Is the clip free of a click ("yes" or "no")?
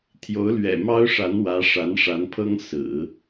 yes